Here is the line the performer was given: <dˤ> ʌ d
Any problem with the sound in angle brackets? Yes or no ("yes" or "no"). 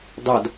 no